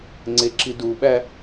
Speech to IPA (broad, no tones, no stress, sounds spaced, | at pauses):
ŋ͡ǀ e ǁ i d u ɓ æ